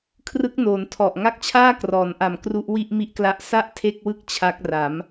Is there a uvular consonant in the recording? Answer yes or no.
no